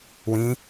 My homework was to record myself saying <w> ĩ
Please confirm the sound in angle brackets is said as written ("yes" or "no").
yes